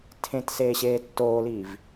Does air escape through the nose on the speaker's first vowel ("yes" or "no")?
yes